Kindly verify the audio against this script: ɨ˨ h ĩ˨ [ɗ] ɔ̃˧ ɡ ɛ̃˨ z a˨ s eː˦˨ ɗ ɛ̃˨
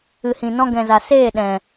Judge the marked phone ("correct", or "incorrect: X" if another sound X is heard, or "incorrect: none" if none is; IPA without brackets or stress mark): incorrect: n